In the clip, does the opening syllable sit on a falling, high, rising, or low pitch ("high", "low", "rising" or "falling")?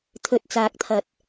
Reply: low